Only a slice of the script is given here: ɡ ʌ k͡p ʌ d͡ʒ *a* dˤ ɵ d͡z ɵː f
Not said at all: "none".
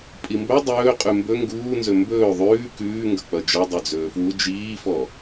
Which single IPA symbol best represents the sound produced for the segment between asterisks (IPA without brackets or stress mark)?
ʌ